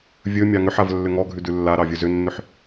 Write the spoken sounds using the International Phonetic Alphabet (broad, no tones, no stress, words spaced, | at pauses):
vʲɵ mʲɑŋʏħav lːʏŋɔɡʱʉ dʉlːaɾɑ vʲɵzʏnːʏħ